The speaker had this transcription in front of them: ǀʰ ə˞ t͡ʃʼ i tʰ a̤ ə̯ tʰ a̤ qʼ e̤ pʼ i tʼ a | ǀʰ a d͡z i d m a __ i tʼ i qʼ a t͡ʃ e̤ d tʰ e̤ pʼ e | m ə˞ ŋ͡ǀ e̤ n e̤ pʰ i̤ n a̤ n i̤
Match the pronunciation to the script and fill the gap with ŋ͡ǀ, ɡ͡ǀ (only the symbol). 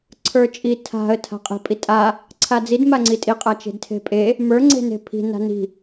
ŋ͡ǀ